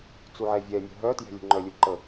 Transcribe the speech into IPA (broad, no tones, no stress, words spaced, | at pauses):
t͡suʕɛvʲɛmʲə̤ ɦœtjɛ̤ lʲə̤ŋ͡ǃœlʲu ǃə